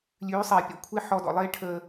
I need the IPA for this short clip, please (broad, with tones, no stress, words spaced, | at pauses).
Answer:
lʲʉː˨˦sˤe˨pʲɔ̰˦kʷʰe˦ ħɔ˧dɔ̰˨lˠeː˦ ʈʰəː˧